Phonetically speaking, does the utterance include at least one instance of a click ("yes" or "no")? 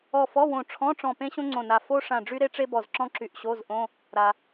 yes